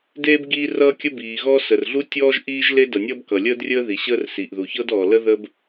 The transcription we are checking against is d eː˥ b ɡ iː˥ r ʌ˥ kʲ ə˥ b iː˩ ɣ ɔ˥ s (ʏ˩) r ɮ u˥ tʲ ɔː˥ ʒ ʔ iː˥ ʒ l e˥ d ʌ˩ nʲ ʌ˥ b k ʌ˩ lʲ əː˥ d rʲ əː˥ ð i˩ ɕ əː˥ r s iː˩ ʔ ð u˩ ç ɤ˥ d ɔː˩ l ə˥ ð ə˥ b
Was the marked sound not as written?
yes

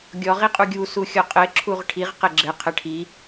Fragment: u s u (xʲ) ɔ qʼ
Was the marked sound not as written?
no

